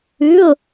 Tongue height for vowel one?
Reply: high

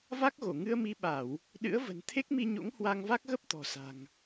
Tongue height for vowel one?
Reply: low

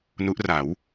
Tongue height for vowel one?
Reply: high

